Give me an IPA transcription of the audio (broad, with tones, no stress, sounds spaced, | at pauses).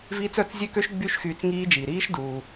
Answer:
v iː˦˥ t͡s œ˩˧˩ t͡s zʲ ø˦˥ k ø˦˥ ʃ ɡ͡b y˦˥ ʃ x yː˧ t͡s ŋ iː˦˥ d͡ʒ iː˩ ɾ iː˦˥ ʃ d uː˩